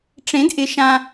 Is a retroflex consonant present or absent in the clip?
present